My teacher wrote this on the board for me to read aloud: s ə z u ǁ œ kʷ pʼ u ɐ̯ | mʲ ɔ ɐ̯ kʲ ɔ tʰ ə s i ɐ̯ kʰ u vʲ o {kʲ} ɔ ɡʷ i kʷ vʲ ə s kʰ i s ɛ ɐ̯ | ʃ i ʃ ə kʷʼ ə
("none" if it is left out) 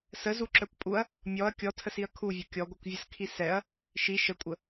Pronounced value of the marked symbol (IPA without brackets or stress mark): kʲ